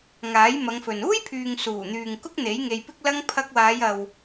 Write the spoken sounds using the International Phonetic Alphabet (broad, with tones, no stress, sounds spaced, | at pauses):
ŋ aː˨˥ j m ɐ˨˧ ŋ f ɵ˨ n uː˥ j pʰ yː˨ ŋ s uː˨˩ n̪ yː˨ ŋ k ʊ˥ k̚ n̪ e˨˥ j ŋ e˧ j p ɪ˥ k̚ l ɐ˥ ŋ pʰ ɐ˧ k̚ w aː˨˧ j ɐ˨ w